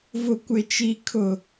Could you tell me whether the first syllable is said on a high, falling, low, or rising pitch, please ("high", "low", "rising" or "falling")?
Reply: low